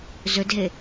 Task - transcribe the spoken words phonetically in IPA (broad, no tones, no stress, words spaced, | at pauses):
zɵdɦe